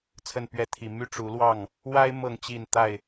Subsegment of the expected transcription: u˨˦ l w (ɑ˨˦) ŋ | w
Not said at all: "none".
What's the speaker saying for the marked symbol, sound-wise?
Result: ɑ˥˨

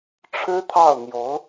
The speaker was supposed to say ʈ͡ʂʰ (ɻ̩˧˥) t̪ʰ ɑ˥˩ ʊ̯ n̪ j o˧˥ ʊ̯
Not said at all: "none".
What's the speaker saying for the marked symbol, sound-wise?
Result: ɻ̩˥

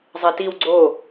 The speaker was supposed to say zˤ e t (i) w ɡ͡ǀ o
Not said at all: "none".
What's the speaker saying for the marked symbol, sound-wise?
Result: i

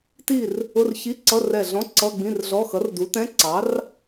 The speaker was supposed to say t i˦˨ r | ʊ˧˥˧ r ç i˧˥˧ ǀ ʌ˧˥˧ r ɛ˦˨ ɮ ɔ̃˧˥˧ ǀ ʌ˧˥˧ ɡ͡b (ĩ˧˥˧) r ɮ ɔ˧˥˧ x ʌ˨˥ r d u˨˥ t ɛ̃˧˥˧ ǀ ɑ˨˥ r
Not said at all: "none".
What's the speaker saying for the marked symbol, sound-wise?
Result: ĩ˧˥˧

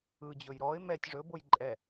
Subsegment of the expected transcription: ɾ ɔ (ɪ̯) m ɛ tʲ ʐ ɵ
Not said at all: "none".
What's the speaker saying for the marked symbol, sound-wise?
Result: ɪ̯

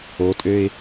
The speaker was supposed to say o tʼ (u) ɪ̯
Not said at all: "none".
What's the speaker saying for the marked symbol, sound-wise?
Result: ø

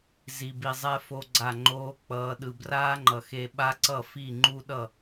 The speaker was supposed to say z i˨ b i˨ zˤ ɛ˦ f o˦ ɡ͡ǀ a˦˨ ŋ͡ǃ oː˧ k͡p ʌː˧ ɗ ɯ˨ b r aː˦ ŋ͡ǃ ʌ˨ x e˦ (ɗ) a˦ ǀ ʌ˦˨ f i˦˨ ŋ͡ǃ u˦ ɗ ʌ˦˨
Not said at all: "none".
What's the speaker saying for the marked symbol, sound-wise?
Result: ɓ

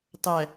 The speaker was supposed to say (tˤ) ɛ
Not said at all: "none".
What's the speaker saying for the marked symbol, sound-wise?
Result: tˤ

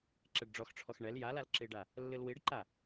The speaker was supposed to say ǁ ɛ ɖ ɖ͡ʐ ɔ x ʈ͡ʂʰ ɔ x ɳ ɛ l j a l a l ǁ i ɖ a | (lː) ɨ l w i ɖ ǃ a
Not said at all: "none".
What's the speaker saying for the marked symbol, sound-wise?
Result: lː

